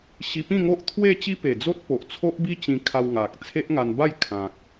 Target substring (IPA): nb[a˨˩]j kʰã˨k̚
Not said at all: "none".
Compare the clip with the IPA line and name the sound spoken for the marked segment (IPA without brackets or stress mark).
a˥˧